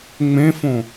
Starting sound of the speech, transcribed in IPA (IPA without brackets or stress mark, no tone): ŋ͡m